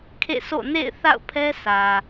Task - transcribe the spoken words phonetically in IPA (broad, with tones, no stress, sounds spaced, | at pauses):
kʰ ḛ˦˨ sʰ o̰˦˨ n ḛ˦˨ ɪ̯ θ a̰˦˨ ʊ̯ pʰ ɛ˦ s ä˨